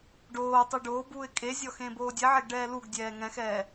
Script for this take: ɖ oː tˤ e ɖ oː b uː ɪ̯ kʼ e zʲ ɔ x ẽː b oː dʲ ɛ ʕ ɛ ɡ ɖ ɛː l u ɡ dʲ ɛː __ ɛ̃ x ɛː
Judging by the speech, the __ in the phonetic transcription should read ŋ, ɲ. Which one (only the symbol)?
ŋ